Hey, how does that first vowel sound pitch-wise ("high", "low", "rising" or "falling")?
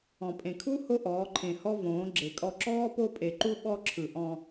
low